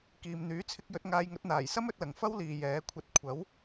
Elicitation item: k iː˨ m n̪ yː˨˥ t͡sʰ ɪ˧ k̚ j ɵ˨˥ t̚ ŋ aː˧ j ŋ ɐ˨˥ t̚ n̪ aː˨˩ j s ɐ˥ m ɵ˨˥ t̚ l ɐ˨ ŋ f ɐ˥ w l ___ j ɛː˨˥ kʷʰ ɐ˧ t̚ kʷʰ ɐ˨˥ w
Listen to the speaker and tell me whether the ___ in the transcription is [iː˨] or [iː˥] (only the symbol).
iː˨